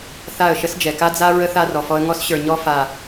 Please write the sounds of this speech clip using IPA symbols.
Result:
θ a˦˨ ə̯ ʃ ə˦ s d͡ʒ ɛ˨ k a˦ d͡z a˦ ɹ ə˦ θ a˦ r ɔ˨ f ɔ˦ ə̯ ŋ ɔ˦ s ɕ ə˞˨ ɲ ɔ˦ f a˨

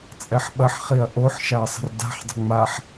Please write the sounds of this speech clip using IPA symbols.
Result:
t͡sʼ ɛ ħ ɓ ɐ ħ χ i ɐ̯ ʔ o ħ ʃ a ɐ̯ sˤ ə̤ r d a̤ ħ dˤ ə̤ ŋ͡m a ħ

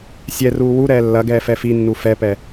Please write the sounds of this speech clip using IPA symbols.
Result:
sʲ ɛ r uː w u ɾ ɛː lː ɐ ɡ ɛː f ɛ f i nː u f ɛ p ɛ

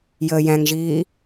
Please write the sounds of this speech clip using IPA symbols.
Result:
j əː j æ̃ ŋ ʒ iː

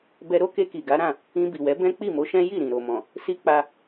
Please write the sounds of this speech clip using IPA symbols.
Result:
b ɛ˧ ɾ o˦ k e˧ k i˨ ɡ a˨˦ ɾ ã˦˨ | ĩ˧ b i˨ w ɛ˨˦ b ɛ̃˦ k͡p i˦˨ m o˨˦ ʃ ɛ̃˦ j i˦˨ ɾ ĩ˨ ɾ o˨ m ɔ̃˨ | s i˦ k͡p a˧

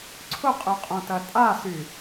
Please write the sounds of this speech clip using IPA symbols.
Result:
ǀʰ ʊ qʼ ø qʼ õ t ɐ tʼ a s y

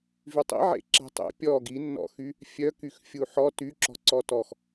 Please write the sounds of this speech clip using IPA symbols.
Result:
v y tˤ ḭ ʕ ḛ ǁ ɛ̤ tˤ ḛ pʲ ɔ ɡ i nː ɔ̰ x y | fʲ œ k y x fʲ u ħ ɔ t y ǁ ɔ̤ ǀ ɔ t ɔ x

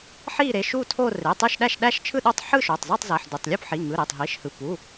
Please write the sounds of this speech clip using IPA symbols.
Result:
ħ i˥˧ ɾ e˩˧˩ ʃ u˥˧ tʰ o˥˧ r e˩˧˩ tˤ ɯ˥˧ ʃ ɗ æ˥˧ ʃ ɗ æ˥˧ ʃ t͡ʃʰ ɯ˥˧ ɗ o˥˧ tˤ ħ ɯ˥˧ ʃ o˩˧˩ tˤ z u˥˧ tˤ z æ˩˧˩ ħ d u˩˧˩ tˤ lʲ u˥˧ p ħ i˩˧˩ ŋ ɯ˩˧˩ ɾ e˩˧˩ tˤ ɦ i˩˧˩ ʃ h ɯ˩˧˩ p u˩˧˩

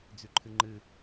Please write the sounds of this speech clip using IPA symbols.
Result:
d͡z ʉ ǃʰ ɨ ŋ͡ǃ ɨ

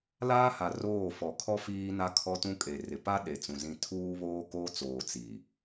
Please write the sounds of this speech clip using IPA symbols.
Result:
l aː˦ h a˨ r oː˦˨ f ɔ˨ kʰ ɔ˦ f iː˦ n a˦ kʰ ɔ˦ t ũ˦ kʼ e˨ r ɪ˨ p a˦ ɗ e˨ t͡s ũ˨ z ĩ˦˨ tʰ uː˦ β oː˦ k oː˦ t͡s oː˨ t͡s i˨

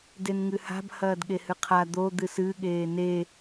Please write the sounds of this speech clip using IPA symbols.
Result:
d e n ŋ ɨ h a̤ b h ɐː d ɠ e h ɨ qʰ a d̪ o d̪ ɨ s ɨ ɠ eː n e

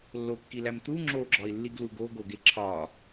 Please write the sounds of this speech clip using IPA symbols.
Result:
lː o kː i l æ m t̪ u ŋ͡ǁ o ɡ͡ǁ ɒ i̯ lː i ɡ l u ɡ o ɡ o ɡ e ǁʰ ɒ

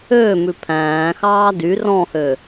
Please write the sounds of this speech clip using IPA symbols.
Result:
øː m ʉ pʰ æ̃ː x ɑː d y r ɔ̃ h ø

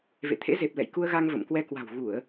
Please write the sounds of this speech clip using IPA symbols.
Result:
v ḛ˧˨ t̪ʰ ḛ˧˥ z e˨˩ p̚ l ɛ̰˧˨ j k u˧ ə̯ ɣ a˧ ŋ v ə̰˧˨ m k w ɛ˧ k w a̤˨˩ w ɣ u˧˩˨ ə̯

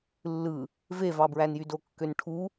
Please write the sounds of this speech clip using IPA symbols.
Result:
lː ɯ | v e v ɑ b ɹ æ n j y d o kː ø n ʈʰ u

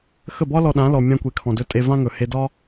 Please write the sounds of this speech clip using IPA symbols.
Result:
x ə˦˨ b ɒ˦ l ɔ˧ ɗ ã˨˦ l ɔ˨ mʲ ã˧ kʷ e˨ kʰ ɔ̃˨ d ɵ˧ tʼ e˧ v ã˦ ŋ ɵ˨ h e˧ d ɒ˦

